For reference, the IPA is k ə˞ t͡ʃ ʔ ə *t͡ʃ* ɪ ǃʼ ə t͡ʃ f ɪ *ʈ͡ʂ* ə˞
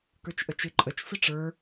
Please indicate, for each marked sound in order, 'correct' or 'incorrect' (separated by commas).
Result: correct, correct